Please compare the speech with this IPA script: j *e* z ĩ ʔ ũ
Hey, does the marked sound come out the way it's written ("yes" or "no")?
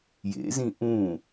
no